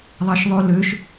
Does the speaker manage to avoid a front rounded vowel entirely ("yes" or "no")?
no